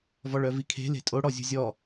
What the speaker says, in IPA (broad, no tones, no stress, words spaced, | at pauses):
vɔɭœvikʰe̤ le̤tʼo ɽɔzʲṳzʲɔ